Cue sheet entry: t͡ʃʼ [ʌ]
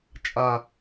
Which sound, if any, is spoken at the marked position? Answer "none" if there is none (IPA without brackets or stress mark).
a